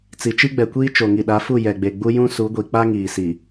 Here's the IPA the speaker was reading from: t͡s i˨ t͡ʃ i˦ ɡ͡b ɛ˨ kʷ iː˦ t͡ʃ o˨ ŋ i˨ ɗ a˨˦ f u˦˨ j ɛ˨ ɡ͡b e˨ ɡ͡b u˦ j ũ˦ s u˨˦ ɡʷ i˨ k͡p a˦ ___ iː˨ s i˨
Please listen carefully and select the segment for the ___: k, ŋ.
ŋ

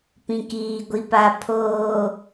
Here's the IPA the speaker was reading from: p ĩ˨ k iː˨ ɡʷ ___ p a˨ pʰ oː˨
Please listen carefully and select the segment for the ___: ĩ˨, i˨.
i˨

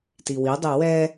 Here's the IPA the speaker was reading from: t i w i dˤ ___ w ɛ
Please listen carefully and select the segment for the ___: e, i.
e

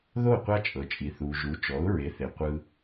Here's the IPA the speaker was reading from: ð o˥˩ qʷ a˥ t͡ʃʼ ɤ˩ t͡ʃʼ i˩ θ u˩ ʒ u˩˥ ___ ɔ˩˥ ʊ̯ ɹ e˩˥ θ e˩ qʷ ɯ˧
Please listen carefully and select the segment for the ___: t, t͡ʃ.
t͡ʃ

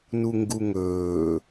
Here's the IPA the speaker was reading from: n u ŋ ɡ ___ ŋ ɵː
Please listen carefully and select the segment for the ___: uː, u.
u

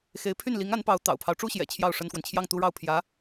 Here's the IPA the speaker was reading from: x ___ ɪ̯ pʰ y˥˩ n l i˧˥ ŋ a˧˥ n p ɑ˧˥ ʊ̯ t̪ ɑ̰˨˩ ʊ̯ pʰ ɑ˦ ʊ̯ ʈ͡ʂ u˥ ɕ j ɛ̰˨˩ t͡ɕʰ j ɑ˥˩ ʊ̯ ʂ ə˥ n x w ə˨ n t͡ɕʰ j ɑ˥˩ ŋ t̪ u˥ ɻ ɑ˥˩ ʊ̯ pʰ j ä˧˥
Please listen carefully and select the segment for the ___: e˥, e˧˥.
e˧˥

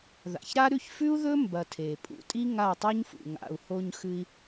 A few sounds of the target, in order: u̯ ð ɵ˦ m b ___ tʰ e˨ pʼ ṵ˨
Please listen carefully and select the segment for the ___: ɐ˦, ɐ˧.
ɐ˧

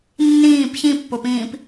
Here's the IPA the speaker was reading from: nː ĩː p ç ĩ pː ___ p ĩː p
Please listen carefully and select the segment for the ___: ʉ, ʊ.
ʊ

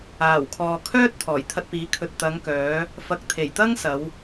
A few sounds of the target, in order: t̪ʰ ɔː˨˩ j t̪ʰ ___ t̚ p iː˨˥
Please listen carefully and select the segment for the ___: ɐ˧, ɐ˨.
ɐ˧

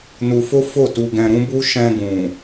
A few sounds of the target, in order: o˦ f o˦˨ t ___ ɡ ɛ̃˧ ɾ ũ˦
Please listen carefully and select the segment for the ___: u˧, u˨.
u˧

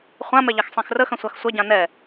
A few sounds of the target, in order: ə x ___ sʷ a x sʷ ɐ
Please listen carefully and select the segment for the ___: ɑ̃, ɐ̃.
ɐ̃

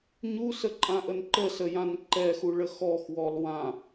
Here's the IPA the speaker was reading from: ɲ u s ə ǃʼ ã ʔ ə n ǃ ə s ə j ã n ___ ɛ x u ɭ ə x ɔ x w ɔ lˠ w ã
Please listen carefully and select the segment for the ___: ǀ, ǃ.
ǃ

